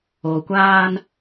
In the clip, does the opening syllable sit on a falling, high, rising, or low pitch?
low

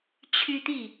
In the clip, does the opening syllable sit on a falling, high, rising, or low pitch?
high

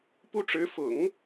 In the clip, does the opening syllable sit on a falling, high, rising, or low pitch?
high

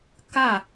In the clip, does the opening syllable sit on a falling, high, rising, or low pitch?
falling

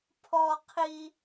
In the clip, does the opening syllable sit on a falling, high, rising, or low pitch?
high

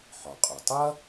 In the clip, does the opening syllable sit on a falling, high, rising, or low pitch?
low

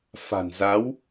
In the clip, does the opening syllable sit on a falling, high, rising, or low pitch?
low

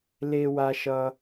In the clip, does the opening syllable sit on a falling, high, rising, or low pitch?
high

